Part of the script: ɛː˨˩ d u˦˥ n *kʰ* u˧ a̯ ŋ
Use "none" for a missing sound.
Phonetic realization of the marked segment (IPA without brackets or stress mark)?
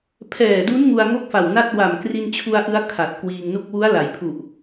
ŋ